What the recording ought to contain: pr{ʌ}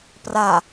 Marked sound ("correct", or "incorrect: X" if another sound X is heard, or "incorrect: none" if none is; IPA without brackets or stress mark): incorrect: a